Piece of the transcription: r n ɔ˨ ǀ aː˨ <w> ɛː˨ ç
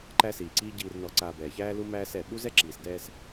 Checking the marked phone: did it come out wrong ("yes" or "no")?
yes